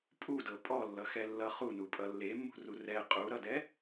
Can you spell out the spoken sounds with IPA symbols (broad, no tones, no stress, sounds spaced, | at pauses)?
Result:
pʼ u d ɤ pʼ ɔ lː ʌ x ɛ lː ʌ χ u n u pʼ ʌ lː e mː ṳ r u r ɛ qʼ u ɾ ʌ d ɛ